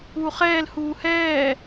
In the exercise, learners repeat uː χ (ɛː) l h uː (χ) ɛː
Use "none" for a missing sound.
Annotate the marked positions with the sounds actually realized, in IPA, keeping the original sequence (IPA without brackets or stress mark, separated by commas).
ɛː, h